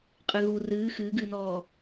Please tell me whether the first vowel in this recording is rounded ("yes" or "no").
no